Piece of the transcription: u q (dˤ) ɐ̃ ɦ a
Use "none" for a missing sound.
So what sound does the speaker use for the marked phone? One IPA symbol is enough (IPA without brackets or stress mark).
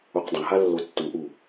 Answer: dˤ